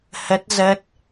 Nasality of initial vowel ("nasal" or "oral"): oral